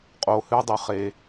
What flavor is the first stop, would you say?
ejective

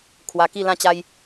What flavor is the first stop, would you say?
aspirated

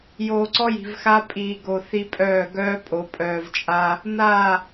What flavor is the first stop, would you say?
click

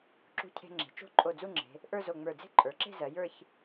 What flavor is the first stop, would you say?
click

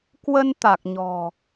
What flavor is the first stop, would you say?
plain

